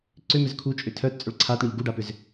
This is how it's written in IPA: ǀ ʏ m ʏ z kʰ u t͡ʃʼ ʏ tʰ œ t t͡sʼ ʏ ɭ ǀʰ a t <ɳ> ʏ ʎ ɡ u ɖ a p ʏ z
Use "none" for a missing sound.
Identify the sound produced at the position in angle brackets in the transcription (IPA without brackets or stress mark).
ɳ